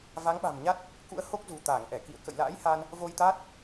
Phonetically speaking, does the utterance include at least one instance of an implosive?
yes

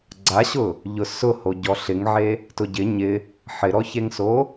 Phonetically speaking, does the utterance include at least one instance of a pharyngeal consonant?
yes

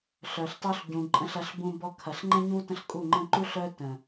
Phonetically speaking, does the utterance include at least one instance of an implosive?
no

